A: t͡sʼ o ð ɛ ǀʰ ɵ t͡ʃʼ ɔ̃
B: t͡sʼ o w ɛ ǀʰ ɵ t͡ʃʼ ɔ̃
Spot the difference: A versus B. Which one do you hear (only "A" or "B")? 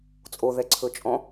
A